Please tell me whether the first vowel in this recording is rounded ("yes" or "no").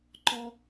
yes